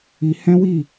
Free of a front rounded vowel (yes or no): yes